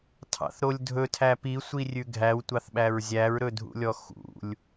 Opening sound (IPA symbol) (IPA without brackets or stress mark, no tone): tʰ